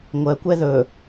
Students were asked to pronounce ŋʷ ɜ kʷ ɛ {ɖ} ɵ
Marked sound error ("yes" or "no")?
yes